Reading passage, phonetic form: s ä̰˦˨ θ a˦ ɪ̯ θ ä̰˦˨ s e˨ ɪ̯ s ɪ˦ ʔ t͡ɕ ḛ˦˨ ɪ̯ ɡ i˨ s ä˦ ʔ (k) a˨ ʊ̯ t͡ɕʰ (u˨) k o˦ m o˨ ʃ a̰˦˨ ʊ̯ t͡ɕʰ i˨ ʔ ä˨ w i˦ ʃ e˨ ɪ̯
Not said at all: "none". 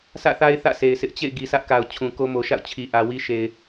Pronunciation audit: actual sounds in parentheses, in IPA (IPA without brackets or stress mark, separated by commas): k, ũ˨